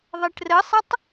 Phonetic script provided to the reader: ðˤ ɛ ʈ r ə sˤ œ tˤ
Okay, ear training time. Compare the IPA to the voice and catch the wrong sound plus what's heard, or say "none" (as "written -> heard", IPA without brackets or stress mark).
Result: œ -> ə